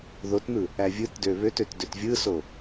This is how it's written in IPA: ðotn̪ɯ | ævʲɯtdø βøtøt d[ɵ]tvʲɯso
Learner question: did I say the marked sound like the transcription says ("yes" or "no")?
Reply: no